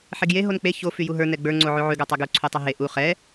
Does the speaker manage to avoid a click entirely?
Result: no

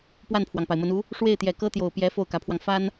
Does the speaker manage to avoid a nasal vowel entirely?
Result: yes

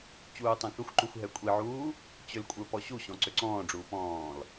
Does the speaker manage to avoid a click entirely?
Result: no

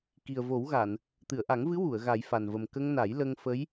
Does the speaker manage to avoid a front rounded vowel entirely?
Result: yes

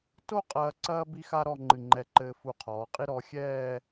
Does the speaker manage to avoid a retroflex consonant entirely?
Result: yes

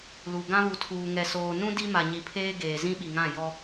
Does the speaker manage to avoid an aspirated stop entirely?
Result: no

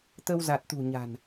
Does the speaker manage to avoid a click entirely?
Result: yes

